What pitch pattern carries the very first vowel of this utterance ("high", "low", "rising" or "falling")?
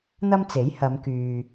high